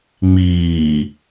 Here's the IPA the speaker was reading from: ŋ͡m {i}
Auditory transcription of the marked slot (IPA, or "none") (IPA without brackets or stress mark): iː